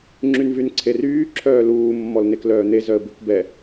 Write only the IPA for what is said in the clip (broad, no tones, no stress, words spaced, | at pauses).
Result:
ŋ͡ǁynvynǀʰeryː ǁʰœːluː mːɔlneklœːn̪e zœə̯bʉk bɛ